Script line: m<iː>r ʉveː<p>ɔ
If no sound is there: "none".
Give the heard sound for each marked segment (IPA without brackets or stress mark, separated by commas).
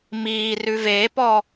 iː, p